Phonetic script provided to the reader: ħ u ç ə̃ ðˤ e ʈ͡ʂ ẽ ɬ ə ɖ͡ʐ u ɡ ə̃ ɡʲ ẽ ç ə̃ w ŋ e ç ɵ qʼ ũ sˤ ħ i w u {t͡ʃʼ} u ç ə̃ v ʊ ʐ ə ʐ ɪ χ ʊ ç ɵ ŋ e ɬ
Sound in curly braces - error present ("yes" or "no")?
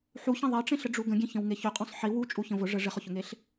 no